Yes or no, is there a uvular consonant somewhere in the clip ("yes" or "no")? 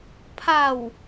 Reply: no